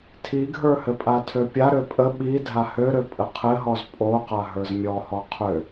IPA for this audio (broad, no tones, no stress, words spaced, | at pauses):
tʰiɡʱə˞ hɘpʼatʰøpʲa ɾøpʼə ɓi dʱahøɾø pʼəqʰɘɦɔz pʼo qaɦə˞zmʲɔhɔ qʰø